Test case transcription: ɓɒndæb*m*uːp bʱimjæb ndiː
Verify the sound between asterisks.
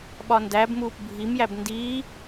correct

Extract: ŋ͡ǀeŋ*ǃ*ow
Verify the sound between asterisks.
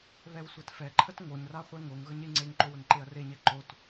correct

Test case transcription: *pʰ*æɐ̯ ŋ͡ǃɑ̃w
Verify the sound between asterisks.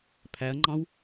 correct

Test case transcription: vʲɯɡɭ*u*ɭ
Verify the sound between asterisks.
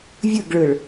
incorrect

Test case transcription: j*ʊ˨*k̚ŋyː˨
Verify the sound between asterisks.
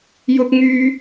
correct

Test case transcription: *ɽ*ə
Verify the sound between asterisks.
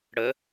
correct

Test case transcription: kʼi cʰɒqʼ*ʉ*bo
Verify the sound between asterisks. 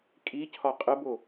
incorrect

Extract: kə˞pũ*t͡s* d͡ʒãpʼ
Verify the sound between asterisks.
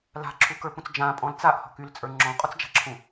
correct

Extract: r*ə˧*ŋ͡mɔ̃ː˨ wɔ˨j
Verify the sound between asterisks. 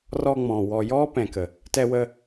incorrect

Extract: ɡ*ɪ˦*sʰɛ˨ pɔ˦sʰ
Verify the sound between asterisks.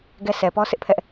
incorrect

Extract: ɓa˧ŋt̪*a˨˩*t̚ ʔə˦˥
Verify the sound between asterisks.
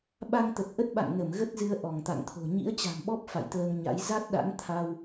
incorrect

